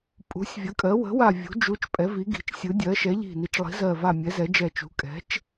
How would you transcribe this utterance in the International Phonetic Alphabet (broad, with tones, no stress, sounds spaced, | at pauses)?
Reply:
pʼ ṳ˩˧ sʲ vʲ ə˩˧ kʼ ɜ˩˧ w ə̤˩˧ w a˨˩ vʲ ṳ˩˧ d͡ʒ u˩˧ t͡ʃ pʼ ɛ˩˧ v i˩˧ ɡ i̤˩˧ t͡ʃ sʲ ɯ˩˧ dʲ ɜ˩˧ ʃ ɛ˩˧ ʎ i̤˨˩ n i˩˧ t͡ʃ lˠ i̤˩˧ z ɜ˨˩ v a˨˩ mʲ ɛ˩˧ z ɛ˩˧ d͡ʒ ɛ˨˩ t͡ʃ ṳ˩˧ kʼ ɛ̤˩˧ t͡ʃ